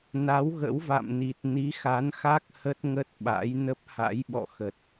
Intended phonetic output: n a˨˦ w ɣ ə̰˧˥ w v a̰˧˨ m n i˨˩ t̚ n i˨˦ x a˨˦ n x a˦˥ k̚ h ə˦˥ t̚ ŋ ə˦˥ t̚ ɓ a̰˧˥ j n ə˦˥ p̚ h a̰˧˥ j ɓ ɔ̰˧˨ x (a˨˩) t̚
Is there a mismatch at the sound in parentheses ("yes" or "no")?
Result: yes